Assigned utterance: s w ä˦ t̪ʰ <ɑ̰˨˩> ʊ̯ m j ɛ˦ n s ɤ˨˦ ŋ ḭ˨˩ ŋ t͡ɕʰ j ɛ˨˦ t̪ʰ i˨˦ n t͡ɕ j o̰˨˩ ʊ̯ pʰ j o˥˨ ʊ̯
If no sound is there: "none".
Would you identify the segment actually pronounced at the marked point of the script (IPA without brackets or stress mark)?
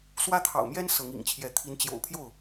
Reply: ɑ̰˨˩